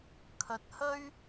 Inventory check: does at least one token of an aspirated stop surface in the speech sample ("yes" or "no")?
yes